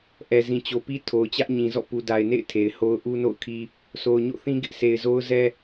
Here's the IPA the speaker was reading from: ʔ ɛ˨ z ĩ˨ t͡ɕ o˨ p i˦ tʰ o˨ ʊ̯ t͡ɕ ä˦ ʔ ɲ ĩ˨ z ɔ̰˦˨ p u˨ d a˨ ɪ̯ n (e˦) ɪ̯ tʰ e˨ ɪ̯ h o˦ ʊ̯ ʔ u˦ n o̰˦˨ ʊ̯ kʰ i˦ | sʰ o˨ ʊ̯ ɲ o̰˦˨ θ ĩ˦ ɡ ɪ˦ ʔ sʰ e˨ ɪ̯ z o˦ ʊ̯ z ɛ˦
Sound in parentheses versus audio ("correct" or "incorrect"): incorrect